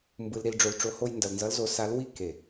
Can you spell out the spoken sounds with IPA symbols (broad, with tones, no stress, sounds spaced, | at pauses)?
m b ɯ˧ l ɾ i˧ l ɖ͡ʐ o˧ l ʈ͡ʂ o˧˥ h o˥ j n d ʌ˧ l n z ʌ˧˥ l z o˧ s a˧˥ l w i˥ k e˨˩